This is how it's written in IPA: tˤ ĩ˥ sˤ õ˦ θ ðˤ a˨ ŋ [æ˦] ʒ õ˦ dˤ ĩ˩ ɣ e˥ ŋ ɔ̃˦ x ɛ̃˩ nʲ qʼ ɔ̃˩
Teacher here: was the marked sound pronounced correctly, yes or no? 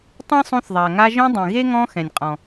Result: no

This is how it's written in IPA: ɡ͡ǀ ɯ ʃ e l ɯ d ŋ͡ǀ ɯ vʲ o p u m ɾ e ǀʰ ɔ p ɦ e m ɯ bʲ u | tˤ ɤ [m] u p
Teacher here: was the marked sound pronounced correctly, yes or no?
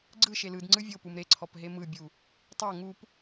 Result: no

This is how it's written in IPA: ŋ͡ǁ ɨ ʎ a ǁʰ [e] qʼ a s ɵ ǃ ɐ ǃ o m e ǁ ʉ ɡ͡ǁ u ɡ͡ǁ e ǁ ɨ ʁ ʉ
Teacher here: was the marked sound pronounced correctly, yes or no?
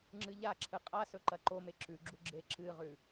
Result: no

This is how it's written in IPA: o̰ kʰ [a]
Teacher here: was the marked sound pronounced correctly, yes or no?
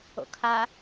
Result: yes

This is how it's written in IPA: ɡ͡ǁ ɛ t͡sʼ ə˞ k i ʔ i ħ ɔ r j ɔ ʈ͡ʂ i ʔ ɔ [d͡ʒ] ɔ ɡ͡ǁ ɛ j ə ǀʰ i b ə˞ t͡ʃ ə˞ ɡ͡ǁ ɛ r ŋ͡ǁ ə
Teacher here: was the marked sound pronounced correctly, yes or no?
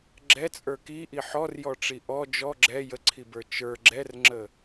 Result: yes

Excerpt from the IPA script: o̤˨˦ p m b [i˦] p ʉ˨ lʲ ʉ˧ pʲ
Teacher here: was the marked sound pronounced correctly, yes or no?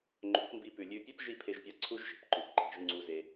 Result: no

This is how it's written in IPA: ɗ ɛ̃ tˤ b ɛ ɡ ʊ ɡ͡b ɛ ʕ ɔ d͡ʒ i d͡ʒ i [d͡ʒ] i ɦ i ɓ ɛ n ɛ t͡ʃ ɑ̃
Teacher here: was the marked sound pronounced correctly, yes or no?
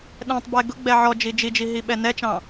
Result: yes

